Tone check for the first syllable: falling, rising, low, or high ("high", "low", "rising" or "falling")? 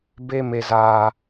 high